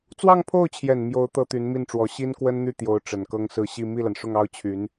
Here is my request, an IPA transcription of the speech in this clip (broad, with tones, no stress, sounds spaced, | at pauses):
t͡s w ɑ˥˧ ŋ pʰ o˥˩ ʊ̯ t͡ɕʰ j ɛ˨˩ n m j o˧˥ ʊ̯ t̪ ɤ˥ t̪ y˧˥ n m i˥˩ n ʈ͡ʂ w ɔ˧˥ ɕ i˥ n k w ə˥ n n̪ y˥˩ t̪ j o˧˥ ʊ̯ ʈ͡ʂ ə˨˩ n k ɤ˥ ŋ s ɹ̩˥˧ ɕ i˥˧ m i˥˩ l a˩ n ʂ ʊ˥˩ ŋ ɑ˥ ʊ̯ t͡ɕʰ y˧˥ n